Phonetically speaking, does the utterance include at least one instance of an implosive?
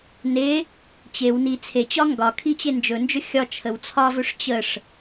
no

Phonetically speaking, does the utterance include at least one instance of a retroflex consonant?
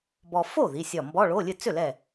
yes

